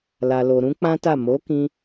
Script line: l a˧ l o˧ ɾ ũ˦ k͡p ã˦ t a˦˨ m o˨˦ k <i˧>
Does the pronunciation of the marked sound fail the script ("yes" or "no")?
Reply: yes